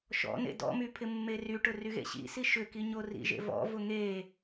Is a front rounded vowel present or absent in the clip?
present